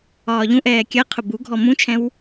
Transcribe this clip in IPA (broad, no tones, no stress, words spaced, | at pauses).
ɒːʎũʔɛː kʲɜ qʰʊbuɡʱɔ mũt͡ʃʰɛ̃w